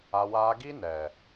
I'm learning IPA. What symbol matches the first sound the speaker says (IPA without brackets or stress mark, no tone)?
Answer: a